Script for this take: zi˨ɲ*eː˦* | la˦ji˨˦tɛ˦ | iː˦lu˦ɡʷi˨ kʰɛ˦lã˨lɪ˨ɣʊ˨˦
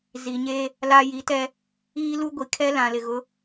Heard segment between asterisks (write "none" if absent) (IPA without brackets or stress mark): eː˦